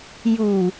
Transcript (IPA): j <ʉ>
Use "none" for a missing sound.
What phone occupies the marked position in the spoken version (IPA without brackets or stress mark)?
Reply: u